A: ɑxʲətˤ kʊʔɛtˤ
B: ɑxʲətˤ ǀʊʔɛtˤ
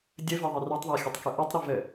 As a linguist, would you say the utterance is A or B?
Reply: A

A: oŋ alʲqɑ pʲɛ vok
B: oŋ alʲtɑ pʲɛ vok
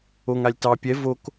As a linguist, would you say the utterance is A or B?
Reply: B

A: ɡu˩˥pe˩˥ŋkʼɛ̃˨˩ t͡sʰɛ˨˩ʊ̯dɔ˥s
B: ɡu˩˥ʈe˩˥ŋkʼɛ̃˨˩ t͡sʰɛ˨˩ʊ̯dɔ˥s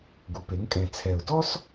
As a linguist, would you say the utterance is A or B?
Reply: A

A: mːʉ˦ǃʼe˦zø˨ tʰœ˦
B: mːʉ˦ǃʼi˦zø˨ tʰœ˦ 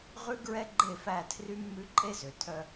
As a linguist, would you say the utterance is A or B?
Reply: A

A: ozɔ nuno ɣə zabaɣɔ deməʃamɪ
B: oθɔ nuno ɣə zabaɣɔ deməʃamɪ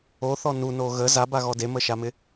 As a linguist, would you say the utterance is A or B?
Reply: B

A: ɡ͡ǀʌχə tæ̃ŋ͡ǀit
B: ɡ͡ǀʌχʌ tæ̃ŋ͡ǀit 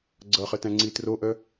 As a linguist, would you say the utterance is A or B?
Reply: A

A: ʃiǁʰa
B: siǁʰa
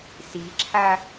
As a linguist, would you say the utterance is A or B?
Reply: B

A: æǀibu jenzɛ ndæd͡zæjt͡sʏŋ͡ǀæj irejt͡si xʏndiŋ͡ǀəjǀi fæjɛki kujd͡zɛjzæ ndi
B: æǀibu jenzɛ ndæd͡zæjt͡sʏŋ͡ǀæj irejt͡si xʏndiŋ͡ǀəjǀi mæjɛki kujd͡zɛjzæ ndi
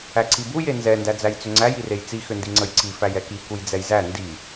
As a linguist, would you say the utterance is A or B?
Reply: A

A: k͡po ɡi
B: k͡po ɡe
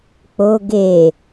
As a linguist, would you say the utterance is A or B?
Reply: B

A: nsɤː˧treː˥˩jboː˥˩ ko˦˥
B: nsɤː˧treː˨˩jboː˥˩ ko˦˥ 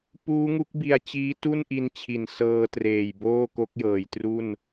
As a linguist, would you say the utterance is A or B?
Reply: B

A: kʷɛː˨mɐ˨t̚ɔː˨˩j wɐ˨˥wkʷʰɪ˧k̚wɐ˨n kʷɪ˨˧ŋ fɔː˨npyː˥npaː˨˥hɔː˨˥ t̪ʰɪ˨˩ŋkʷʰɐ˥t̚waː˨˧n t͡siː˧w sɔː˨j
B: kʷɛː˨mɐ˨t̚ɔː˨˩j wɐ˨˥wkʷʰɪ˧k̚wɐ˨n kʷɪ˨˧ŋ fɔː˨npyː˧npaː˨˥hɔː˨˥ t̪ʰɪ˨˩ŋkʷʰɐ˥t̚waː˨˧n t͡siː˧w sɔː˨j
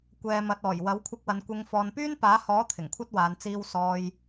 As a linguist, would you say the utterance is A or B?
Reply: A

